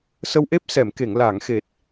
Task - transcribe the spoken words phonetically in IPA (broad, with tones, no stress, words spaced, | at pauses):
sə˧wʔe˦˥p̚sɛ˨˩˨mke˨˩˨ŋ la˨˩˨ŋxe˨˩t̚